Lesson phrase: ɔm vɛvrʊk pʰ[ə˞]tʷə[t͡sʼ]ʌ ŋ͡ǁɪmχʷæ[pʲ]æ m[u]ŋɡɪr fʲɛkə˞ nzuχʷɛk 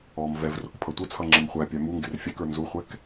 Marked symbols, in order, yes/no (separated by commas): no, no, yes, yes